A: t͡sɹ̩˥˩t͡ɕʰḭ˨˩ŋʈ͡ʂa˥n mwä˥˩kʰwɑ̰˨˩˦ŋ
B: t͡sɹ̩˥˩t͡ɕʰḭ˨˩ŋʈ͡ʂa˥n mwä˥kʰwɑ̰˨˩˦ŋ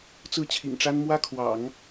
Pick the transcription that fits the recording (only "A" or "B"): B